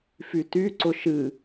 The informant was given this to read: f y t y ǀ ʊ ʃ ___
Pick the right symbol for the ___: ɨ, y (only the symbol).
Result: ɨ